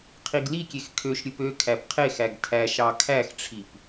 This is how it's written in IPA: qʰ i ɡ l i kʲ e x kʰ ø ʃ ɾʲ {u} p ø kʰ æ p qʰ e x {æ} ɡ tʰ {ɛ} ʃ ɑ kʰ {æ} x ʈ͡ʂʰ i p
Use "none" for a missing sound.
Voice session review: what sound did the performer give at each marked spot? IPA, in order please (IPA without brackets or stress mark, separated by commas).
ɯ, æ, æ, æ